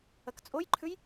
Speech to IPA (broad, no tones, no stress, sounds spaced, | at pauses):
ɐ k t͡sʼ o j ǃʰ ʉ j